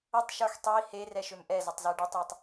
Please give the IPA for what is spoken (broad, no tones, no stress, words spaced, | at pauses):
ətˤʃə˞x tˤi he rɛʃømʔɛzʌtˤ zɛɖitˤjətˤ